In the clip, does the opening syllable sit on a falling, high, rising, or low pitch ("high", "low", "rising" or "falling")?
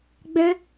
high